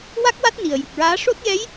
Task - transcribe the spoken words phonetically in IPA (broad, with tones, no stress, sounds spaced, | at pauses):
w a˦˥ k̚ w a˦˥ t̚ n i˨˩ ə̯ j ɨ˨˩ k̚ ɹ aː˧˥ ʂ o˦˥ t̚ j ɛ˧˥ j